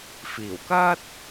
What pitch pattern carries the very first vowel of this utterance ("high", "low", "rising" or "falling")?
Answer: low